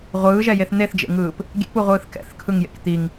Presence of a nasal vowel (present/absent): absent